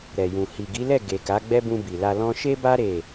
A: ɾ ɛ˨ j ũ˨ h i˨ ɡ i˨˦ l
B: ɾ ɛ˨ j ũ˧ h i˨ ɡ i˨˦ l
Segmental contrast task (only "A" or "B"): A